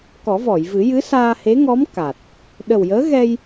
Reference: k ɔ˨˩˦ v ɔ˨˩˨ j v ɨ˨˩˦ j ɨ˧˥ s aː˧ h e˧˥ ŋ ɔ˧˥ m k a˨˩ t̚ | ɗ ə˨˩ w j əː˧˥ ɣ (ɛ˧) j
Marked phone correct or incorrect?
correct